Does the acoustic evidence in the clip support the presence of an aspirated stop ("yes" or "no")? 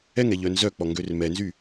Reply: no